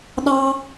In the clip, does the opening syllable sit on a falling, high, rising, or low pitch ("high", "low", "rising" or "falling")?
high